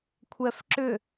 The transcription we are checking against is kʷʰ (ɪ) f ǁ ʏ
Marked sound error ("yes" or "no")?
yes